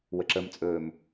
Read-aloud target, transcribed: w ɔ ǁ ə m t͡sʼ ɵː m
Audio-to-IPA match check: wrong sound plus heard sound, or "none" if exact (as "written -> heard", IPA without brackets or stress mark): ɔ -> ə